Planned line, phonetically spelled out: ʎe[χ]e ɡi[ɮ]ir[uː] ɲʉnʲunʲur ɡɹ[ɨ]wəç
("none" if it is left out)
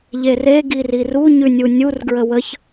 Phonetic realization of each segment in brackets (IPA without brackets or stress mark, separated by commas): r, r, u, ə